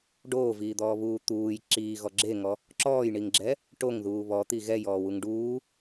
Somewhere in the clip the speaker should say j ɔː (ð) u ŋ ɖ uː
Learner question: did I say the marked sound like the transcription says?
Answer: no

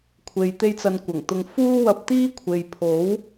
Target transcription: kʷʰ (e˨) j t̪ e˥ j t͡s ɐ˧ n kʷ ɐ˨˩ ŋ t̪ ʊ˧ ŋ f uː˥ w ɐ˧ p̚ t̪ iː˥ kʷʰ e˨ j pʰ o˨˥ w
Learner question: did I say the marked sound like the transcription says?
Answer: yes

